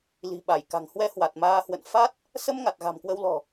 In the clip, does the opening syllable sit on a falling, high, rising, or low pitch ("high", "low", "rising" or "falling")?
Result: low